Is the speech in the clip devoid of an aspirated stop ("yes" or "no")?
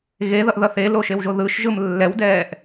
yes